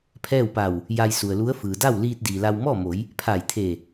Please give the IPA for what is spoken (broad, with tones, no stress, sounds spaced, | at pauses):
pʰ ɛː˥˨ w p a˧˩ w | j a˧ j s u˩ ə̯ l u˧˥ ə̯ f ɯː˩ d a˥˨ w l iː˧ t̚ d iː˩ l a˧ w m ɔː˥˨ m o˩˧ j | pʰ a˧˩ j t̪ʰ e˧˩